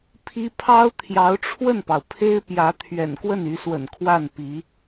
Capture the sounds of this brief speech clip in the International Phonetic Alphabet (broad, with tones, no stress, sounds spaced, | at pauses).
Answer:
pʰ i˥ pʰ ɑ˥ ʊ̯ t̪ʰ j ɑ˧˥ ʊ̯ ʈ͡ʂʰ w ə˥˩ n p ɑ˩ ʊ̯ pʰ e˥ ɪ̯ p j ä˧˥ t̪ʰ ɥ ɛ̰˨˩ n k w ə˥˩ n y˧˥ s w ə̰˨˩ n kʰ w a˥˩ n p i˧˥